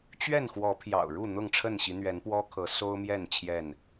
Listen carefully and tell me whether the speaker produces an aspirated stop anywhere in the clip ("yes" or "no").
yes